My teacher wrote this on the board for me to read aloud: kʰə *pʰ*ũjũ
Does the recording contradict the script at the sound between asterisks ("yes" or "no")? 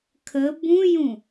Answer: yes